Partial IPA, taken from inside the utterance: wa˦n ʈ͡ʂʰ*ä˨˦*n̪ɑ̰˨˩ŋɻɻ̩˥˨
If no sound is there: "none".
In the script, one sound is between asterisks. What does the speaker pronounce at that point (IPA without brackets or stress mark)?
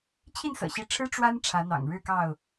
ä˨˦